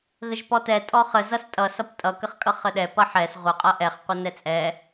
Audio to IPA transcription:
ɣ ə ʒ p ɔ t ɛ tʼ ɔ χ ə z ʌ s tʼ ʌ s ʌ p tʼ ʌ k ə χ kʼ ʌ χ ə ɗ ɛ p ʌ ħ ɛ s ʁʷ ə qʼ ʌ ʔ ɛ χ qʷ ʌ n ɛ t͡sʼ ɛ

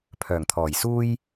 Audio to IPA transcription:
pʰ œː˨˩ ŋ t̪ʰ ɔː˨˩ j s uː˥ j

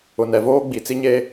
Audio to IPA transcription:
ʊ˨ n ɛ˨ v oː˦ ɡ͡b i˨ t͡s i˦ ɲ e˦

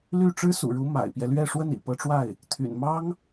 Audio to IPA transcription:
l y˥˩ ʈ͡ʂ ɻ̩˥ s ṵ˨˩ ɻ u˧˥ m a̰˨˩ ɪ̯ p j ɛ˦ l ɥ ɛ˥˧ ʂ w ə˥˩ n ḭ˨˩ p ɤ˧˥ ʈ͡ʂ w a˥˩ ɪ̯ | t̪ʰ y̰˨˩ n m ɑ˥ ŋ

